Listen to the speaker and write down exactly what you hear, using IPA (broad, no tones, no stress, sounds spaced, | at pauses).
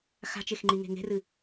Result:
x a̤ t͡ʃ e x ŋ͡ǃ i ŋ e̤ ŋ e̤ r ɨ